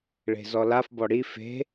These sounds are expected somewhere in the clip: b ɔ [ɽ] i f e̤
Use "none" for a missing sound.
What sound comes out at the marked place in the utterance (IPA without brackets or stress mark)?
ɽ